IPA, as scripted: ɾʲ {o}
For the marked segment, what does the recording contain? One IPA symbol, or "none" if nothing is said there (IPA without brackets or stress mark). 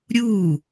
u